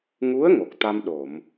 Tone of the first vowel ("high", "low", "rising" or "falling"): rising